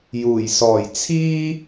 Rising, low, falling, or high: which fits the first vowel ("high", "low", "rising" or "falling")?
low